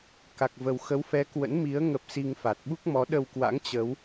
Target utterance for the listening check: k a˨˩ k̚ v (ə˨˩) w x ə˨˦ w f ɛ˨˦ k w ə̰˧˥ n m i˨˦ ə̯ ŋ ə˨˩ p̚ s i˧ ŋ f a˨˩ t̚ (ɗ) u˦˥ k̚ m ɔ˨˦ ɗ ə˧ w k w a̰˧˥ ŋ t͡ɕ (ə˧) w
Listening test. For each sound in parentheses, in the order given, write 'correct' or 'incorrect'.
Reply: correct, incorrect, incorrect

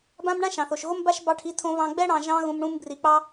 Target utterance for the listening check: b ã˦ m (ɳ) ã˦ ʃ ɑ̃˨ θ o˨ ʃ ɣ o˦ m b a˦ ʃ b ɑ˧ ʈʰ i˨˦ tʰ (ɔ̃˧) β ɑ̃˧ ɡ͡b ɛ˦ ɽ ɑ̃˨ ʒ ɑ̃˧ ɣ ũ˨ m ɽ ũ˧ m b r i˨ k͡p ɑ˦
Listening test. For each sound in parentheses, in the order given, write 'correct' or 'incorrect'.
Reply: correct, incorrect

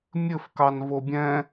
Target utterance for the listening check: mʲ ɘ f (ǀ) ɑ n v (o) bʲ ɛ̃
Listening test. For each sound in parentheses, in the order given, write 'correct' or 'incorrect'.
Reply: incorrect, correct

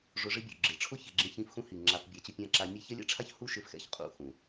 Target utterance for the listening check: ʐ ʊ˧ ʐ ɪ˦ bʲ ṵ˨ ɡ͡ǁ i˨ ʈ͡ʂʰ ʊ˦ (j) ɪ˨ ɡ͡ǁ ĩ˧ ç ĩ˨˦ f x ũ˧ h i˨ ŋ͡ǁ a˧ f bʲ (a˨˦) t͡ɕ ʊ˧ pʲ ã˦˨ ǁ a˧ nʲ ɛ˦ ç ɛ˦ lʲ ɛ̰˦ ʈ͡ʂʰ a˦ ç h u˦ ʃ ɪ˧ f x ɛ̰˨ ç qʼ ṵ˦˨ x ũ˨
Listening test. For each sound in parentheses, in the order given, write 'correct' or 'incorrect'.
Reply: incorrect, correct

